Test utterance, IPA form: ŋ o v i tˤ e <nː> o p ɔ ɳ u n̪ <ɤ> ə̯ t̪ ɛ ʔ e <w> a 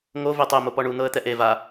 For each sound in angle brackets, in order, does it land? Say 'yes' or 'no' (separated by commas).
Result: no, yes, no